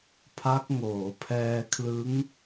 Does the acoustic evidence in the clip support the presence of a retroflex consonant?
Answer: no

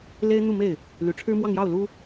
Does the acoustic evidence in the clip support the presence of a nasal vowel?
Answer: no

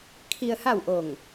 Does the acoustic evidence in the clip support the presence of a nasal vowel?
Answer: no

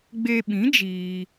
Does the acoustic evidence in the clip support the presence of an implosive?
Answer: yes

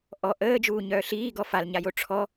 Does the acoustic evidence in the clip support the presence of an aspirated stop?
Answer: yes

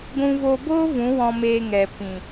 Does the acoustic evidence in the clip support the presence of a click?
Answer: no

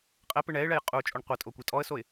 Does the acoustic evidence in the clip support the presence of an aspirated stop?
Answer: no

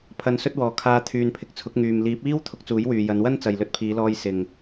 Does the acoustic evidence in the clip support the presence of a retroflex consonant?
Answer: no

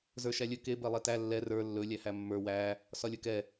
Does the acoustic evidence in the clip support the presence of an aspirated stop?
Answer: no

